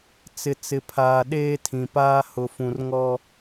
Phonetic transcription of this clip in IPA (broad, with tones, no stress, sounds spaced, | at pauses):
t͡s ɪ˨ t͡s ɪ˨ pʰ aː˨ ɗ eː˦ tʰ ĩ˨ p aː˦ h ʊ˨ f ũ˨ r ŋ ɔ˦